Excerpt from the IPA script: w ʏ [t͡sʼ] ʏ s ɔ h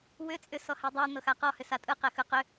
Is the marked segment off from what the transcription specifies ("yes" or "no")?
no